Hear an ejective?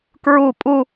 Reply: yes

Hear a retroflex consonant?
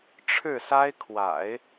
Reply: yes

